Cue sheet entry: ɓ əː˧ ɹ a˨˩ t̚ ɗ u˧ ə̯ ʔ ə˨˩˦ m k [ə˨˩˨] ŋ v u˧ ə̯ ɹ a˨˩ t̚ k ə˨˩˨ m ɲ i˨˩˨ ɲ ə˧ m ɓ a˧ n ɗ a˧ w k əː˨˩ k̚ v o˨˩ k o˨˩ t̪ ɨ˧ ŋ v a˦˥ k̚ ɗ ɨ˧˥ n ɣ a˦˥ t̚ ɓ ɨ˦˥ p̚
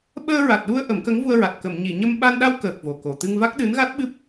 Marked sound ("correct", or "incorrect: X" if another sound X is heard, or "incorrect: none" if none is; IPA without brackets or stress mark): incorrect: ə˧˥